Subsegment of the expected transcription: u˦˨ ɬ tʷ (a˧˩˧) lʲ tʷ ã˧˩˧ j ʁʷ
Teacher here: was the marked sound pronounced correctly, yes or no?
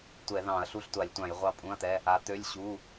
yes